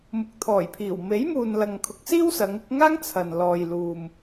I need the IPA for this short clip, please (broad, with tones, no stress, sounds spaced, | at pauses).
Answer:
m ʊ˨ k̚ t̪ʰ ɔː˨˩ j pʰ iː˨˩ w m e˨˥ j m uː˨ n l ɐ˨ ŋ kʰ ʊ˨˥ k̚ s iː˥ w s ɐ˨˧ ŋ ɪ˨˥ k̚ ŋ aː˥ ŋ t͡sʰ ɐ˨ n l ɔː˨ j l uː˨ m